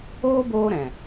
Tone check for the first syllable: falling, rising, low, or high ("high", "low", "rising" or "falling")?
high